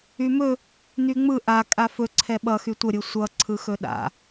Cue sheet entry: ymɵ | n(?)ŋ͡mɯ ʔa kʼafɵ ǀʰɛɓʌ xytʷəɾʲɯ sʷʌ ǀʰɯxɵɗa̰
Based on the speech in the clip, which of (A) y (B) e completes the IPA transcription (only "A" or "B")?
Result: A